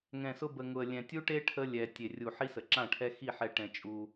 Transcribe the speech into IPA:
ŋ ɛ̃˨ s ʊ˧ b ə˨ ŋ ʊ˨ ə̯ lʲ ɛ̃˨ tʲ u˦ ʈ e˦ ʈʰ ə˦ lʲ ɛ˨ tʲ e˨ rʲ u˨ ħ i˦ s ə˨ ǁ ã˦˨ ʈʰ ɛ˦ x i˦˨ ħ ɛ˧ ʈ ɛ̃˧ t͡ʃʼ u˧

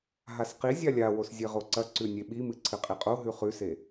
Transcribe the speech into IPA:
ɦ a s q i zʲ a lʲ a w o s zʲ e ʁ o ǀ ɐ ǀ ʉ nʲ e ɓ i m ɨ ǀʰ ɨ qʼ i qʼ o ɦ ʉ χ ʉ s e

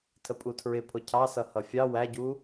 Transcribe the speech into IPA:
tʰ ə pʼ u tʰ ɹ ɪ pʰ ʊ cʰ ɑ s ʌ h ʌ fʲ ɑ w æ ɟ u

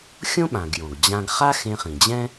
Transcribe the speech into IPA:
xʲ õ˥ ɓ ã˩ ɡ j õ˩ ɡ d͡ʑ ã˧ ɡ χ a˥ x ẽ˧ χ ĩ˩ d͡ʑ ɛ̃˥

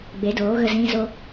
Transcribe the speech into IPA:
ɡ͡b e˨˦ d oː˨˦ ɣ ə˧ z ĩ˦ z o˦

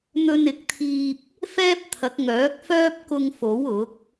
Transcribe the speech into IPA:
n̪ ɵ˧ n ɪ˨˥ k̚ t̪ʰ iː˧ p̚ | f ɛː˥ p̚ t̪ʰ ɐ˨˥ k̚ ŋ œː˨˥ k̚ f œː˥ p̚ k ʊ˧ ŋ f o˨˥ w ʊ˨˥ k̚

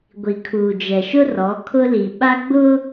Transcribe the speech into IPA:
ɡʷ i˨ kʰ uː˨ d͡ʒ ɛ˨ ʃ ʊ˦ r ɔ˨˦ kʰ ʊ˦ l i˨ ɓ a˦ ɡ͡b ʊ˦

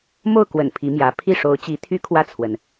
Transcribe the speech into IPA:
m o˥˩ ʊ̯ k w ə̰˨˩ n pʰ i˧˥ m j ä˧˥ pʰ i˥˩ ʂ o˧˥ ʊ̯ t͡ɕ i˧˥ t̪ʰ y˥ kʰ w ä˥˩ t͡sʰ w ə˩ n

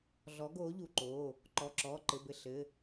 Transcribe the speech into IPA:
ɮ ɔ˨˥ ɡ oː˨˥ ʎ u˩˧˩ ǃ oː˩˧˩ | ǃ ɔ˩˧˩ ǁ ɔː˩˧˩ ǃ ɘ˩˧˩ b ɘ˧˩ ɬ ɘ˩˧˩

